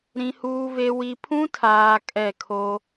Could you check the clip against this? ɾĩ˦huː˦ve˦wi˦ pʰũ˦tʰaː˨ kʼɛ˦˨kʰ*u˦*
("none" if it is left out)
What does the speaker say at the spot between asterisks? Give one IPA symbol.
o˦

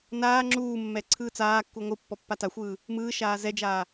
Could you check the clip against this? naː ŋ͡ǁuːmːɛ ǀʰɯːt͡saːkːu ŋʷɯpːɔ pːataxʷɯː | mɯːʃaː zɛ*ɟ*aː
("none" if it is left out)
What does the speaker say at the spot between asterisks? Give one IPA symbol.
d͡ʒ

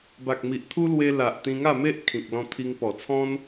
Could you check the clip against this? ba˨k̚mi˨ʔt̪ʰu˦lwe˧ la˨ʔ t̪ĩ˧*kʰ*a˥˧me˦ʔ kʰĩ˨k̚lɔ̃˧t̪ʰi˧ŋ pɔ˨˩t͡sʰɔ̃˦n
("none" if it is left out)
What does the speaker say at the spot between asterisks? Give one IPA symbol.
ŋ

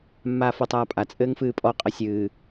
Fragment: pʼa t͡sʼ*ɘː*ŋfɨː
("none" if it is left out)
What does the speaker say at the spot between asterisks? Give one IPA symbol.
ɘː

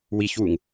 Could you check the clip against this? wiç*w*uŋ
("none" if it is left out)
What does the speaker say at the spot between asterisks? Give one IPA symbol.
w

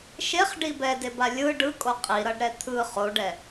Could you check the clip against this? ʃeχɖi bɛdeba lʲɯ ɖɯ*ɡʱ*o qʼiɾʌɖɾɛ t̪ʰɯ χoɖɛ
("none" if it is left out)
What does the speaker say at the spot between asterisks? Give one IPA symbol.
kʼ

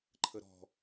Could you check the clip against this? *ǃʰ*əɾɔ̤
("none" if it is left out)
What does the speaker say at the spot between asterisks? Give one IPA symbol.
ǃʰ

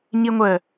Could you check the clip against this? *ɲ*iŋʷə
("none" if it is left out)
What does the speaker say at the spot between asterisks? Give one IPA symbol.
ɲ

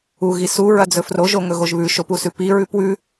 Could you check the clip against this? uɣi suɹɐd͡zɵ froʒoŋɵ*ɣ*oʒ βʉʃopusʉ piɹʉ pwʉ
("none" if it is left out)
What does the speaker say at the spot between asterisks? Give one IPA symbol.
ɣ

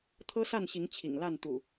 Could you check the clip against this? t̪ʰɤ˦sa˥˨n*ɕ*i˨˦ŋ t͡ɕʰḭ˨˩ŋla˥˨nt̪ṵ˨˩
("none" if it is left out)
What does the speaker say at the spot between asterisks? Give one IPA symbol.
ɕ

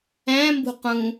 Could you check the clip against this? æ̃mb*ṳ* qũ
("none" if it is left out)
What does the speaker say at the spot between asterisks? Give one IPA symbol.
ṳ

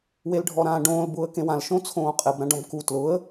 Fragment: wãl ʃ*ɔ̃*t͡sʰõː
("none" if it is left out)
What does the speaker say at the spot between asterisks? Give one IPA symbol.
õ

